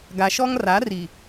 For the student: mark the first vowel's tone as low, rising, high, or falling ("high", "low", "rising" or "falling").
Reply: low